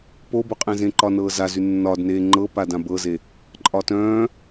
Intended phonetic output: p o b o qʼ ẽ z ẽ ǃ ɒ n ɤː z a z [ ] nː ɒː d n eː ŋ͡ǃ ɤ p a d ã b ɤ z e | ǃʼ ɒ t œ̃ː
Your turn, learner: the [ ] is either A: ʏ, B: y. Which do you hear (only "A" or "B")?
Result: B